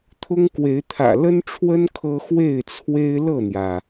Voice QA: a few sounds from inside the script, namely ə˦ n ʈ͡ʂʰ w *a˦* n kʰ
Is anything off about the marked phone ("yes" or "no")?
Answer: yes